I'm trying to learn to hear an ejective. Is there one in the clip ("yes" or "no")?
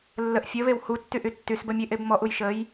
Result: no